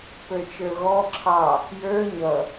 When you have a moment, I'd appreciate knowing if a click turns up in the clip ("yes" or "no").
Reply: yes